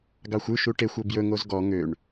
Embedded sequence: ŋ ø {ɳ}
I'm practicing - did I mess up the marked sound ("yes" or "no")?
no